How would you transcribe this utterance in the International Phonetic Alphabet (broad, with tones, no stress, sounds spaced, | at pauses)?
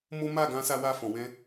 m o˦ m a˦˨ ɡ ã˧ s a˦ w a˦ f ɔ̃˧ w ɛ̃˧